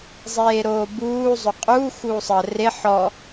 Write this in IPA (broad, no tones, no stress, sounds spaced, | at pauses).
zˤ eː ɾ oː b uː zˤ o qʼ uː x uː sˤ əː r e ħ ɔ